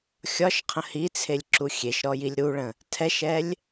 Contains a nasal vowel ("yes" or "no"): yes